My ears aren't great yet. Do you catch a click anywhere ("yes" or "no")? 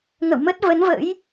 no